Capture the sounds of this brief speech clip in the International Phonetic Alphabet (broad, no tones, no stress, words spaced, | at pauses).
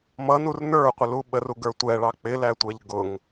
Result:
mʌnur nə˞qʷɪ luɓəru ɡə˞tʷɛɭɑ k͡pɪlætʷɛʎ ɡʊŋ